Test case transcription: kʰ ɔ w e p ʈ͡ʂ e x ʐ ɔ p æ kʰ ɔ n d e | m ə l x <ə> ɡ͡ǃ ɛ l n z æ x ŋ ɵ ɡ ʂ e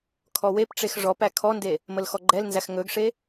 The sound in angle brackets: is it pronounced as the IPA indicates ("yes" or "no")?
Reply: no